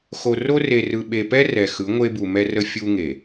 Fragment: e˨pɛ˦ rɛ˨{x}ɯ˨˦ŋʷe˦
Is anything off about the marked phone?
no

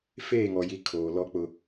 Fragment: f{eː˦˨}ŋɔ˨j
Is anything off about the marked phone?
no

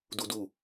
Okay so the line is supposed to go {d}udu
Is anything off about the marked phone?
no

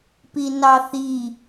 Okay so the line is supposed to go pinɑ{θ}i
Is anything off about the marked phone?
no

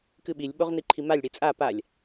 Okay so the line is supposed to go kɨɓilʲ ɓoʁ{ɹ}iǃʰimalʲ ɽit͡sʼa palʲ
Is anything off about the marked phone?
yes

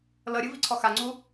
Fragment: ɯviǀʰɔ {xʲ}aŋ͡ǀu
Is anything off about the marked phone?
yes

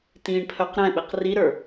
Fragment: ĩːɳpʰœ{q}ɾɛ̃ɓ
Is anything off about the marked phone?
no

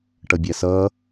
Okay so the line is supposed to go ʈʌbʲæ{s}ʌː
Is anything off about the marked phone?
no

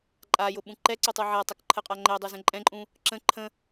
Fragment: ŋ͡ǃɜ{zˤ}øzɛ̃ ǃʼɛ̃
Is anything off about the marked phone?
yes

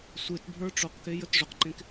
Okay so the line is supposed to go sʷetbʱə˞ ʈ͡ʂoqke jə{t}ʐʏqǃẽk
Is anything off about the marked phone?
no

